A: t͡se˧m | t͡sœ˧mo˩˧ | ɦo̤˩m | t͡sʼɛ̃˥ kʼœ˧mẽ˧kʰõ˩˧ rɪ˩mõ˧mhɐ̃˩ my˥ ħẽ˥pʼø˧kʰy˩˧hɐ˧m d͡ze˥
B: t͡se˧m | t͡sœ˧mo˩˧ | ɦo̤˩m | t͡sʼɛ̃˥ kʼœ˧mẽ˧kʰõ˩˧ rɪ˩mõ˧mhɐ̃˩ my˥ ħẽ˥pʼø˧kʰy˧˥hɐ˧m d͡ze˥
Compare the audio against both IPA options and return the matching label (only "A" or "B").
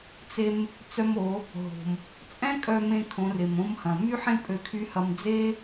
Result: B